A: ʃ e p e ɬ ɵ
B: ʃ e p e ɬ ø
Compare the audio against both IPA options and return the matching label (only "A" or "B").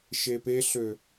B